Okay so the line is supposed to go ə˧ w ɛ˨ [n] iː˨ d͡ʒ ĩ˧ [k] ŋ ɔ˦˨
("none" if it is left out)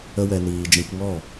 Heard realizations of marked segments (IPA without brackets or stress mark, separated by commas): n, k